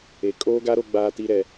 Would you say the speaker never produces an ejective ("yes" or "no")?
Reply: no